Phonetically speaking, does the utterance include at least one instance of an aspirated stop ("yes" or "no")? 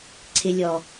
yes